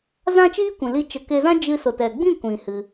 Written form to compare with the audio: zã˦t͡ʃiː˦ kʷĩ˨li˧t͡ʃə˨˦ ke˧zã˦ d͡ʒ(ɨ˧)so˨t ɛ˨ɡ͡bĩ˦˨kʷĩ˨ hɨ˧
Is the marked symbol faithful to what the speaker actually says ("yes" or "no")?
yes